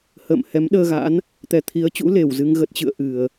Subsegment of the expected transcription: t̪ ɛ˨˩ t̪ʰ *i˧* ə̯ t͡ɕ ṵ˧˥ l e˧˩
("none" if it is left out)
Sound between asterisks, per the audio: i˨˦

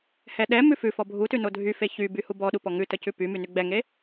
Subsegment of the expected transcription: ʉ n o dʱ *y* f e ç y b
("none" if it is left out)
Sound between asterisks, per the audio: y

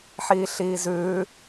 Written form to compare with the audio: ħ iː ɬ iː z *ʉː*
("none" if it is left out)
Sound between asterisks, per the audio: ʉː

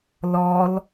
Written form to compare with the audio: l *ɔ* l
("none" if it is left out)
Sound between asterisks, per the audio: ɔ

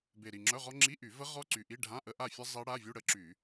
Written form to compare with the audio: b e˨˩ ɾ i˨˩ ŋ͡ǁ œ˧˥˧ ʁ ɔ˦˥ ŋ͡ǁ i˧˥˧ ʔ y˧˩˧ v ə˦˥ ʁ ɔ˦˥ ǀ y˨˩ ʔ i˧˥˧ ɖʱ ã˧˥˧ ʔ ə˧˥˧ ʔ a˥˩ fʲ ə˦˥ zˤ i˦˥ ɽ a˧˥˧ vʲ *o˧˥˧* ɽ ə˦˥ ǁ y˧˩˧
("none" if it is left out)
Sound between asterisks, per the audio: u˧˥˧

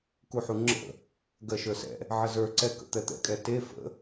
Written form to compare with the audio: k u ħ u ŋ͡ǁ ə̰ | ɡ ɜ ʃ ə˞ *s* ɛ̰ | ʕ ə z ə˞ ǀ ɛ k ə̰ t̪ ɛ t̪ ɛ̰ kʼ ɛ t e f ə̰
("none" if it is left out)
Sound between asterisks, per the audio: s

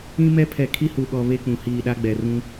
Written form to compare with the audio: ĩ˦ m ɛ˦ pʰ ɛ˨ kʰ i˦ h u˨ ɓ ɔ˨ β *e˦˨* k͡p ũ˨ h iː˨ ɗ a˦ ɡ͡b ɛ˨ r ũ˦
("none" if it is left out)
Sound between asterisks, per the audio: e˦˨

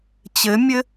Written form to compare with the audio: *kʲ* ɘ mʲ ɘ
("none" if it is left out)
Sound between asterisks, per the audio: t͡ɕ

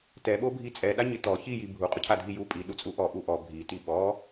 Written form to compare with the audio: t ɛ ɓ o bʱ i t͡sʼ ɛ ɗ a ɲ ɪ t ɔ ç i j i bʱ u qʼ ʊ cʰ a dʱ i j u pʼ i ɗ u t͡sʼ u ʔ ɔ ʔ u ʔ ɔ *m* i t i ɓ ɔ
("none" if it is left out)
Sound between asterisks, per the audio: bʱ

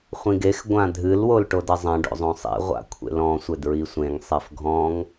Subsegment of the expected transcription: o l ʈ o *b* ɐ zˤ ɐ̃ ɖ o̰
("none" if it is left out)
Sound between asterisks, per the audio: d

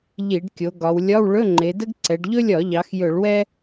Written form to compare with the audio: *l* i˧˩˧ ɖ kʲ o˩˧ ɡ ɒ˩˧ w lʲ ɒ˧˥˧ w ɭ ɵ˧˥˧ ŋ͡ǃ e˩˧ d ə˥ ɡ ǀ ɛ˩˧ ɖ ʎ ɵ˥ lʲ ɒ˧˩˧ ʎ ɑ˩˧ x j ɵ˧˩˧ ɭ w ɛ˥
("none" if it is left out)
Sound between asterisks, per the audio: ʎ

